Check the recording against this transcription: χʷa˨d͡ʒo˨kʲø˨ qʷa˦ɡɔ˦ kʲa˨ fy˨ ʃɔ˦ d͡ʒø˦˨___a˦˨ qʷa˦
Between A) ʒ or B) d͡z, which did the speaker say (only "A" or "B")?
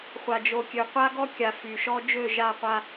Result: A